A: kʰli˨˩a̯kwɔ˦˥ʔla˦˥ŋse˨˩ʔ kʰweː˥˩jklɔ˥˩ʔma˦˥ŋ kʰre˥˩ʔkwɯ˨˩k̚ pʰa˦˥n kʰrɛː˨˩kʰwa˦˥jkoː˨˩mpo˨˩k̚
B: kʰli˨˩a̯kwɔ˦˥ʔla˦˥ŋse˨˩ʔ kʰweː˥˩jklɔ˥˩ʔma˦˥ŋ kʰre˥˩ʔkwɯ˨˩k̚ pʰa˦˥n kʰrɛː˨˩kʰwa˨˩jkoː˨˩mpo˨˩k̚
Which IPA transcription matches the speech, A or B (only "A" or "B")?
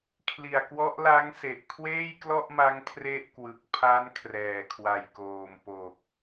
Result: B